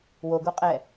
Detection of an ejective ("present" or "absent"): present